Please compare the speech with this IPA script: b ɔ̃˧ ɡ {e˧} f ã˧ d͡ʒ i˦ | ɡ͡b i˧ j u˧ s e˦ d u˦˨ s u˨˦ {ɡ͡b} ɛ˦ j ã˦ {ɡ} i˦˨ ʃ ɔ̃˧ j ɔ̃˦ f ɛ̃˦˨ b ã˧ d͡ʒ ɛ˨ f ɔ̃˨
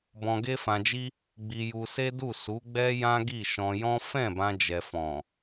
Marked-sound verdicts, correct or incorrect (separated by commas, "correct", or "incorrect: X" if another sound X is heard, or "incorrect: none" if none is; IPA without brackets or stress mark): incorrect: e˦, correct, correct